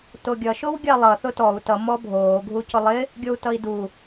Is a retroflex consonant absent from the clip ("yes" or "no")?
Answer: yes